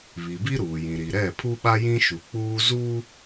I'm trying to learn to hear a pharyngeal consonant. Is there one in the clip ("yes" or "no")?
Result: no